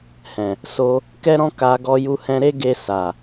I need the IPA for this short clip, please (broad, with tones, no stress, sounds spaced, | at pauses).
h ɛ̃˨ | s o˧ | k ɛ˦ ɾ ɔ̃˦ k a˧ ɡ ɔ˦ j u˦ h ɛ̃˦ ɾ e˦ ɡ e˧ s a˨